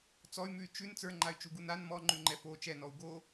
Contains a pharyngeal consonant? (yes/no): no